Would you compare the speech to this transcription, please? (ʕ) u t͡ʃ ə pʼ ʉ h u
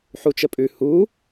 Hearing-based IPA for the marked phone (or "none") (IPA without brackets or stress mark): ħ